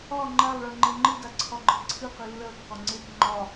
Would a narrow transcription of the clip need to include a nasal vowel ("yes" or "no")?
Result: no